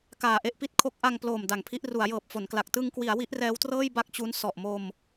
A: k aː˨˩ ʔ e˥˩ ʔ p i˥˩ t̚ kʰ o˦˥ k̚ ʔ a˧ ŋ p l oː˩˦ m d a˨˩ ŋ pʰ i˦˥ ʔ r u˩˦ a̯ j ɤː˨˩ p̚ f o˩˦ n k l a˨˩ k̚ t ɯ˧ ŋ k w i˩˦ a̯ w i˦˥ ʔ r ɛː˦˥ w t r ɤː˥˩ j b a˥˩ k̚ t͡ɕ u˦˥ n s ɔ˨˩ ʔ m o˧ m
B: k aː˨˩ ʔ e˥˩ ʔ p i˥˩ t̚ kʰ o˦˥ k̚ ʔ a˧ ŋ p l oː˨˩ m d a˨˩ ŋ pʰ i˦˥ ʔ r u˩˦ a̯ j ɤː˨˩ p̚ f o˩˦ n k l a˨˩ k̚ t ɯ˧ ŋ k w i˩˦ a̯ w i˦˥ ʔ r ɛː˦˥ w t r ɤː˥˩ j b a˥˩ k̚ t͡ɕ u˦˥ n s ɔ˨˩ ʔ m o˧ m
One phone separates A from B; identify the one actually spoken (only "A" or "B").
B